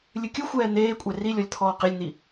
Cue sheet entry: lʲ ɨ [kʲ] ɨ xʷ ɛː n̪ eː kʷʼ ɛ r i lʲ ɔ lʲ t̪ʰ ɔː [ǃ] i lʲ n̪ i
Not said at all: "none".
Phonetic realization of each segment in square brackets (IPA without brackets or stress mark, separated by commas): kʲ, q